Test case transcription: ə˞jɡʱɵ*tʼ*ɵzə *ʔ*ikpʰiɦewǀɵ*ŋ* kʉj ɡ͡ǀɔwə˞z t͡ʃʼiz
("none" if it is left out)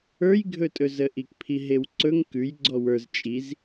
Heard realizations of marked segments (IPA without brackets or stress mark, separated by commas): tʼ, ʔ, ŋ